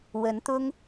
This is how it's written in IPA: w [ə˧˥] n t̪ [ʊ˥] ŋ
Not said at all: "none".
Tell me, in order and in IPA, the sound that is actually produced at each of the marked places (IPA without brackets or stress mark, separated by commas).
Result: ə˧˥, ʊ˥